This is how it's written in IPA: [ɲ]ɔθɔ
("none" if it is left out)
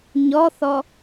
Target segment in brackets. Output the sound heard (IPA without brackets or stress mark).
ɲ